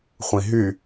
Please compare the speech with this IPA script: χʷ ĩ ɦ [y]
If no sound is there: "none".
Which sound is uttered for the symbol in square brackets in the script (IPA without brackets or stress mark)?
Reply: y